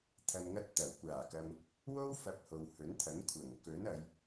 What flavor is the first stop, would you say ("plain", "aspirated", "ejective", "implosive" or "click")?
aspirated